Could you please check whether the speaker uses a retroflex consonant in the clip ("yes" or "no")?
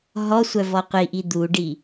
yes